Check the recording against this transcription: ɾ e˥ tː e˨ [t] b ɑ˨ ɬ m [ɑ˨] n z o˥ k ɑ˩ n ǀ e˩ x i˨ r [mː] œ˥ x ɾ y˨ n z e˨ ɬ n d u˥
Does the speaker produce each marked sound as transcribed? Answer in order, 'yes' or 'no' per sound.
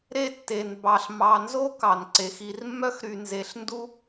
no, yes, yes

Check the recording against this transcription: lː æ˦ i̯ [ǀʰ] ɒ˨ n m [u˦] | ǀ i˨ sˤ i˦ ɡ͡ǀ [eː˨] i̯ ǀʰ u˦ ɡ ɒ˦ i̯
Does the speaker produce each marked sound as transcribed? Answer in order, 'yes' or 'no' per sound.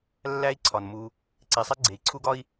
yes, yes, no

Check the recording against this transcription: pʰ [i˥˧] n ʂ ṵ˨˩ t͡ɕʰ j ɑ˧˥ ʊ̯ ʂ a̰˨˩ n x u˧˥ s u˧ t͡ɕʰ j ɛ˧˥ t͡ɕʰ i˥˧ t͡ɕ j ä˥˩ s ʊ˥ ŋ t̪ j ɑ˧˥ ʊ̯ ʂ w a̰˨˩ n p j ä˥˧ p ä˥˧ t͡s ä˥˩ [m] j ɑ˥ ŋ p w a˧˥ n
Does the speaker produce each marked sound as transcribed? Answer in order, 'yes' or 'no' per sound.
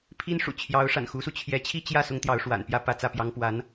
no, no

